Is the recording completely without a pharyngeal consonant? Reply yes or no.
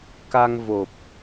yes